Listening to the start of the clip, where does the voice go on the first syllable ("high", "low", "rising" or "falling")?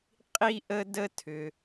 high